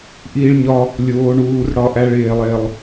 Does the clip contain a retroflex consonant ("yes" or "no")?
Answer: yes